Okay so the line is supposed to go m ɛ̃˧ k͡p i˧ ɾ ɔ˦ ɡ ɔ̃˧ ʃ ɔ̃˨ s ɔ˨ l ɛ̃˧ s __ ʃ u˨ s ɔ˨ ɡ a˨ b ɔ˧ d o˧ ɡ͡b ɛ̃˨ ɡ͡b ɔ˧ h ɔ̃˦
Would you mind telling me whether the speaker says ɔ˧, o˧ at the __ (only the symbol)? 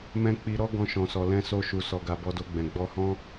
o˧